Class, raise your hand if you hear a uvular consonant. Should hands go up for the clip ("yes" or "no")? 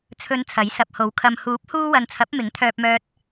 no